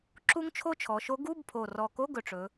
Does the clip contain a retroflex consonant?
yes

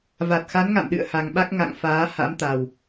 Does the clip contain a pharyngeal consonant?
no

